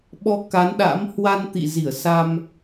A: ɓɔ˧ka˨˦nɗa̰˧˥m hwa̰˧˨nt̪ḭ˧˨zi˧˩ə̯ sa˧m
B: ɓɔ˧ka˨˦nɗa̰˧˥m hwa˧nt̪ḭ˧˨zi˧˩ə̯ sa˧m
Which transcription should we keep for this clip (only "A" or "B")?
B